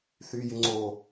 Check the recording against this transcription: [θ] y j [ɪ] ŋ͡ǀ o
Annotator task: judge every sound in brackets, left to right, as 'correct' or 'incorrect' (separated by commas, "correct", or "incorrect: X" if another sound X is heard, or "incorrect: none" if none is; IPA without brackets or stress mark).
correct, correct